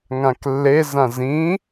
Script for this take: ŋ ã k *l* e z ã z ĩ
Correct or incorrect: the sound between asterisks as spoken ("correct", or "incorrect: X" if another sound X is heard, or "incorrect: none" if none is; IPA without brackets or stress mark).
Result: incorrect: lː